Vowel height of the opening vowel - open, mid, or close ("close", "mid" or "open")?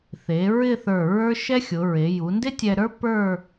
mid